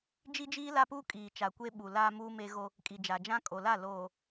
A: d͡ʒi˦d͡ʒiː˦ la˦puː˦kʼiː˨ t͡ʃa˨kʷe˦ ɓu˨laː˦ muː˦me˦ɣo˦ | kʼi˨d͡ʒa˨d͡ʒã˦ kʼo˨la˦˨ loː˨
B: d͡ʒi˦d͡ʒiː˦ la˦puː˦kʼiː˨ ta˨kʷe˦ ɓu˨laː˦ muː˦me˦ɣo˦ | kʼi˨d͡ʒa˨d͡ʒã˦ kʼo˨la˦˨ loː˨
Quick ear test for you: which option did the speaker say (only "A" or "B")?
A